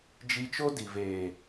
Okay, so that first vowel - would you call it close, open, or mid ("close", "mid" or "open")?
close